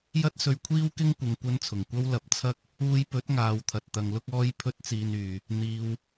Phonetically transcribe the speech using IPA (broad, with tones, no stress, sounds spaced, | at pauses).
j ɐ˥ t̚ s ɵ˧ ɥ kʷʰ iː˥ w k ɪ˥ ŋ kʷ ɪ˨ ŋ kʷ ɐ˧ n t͡sʰ ʊ˨˩ ŋ kʷ ɐ˥ w l ɐ˧ p̚ t͡sʰ ɐ˥ k̚ | uː˧ j p ɵ˨˥ t̚ ŋ aː˨˧ w t̪ʰ ɐ˨ t̚ t̪ ɐ˧ ŋ l ʊ˥ k̚ ɔː˥ j pʰ ɵ˥ t̚ t͡s iː˧ n yː˨ | n̪ iː˨ w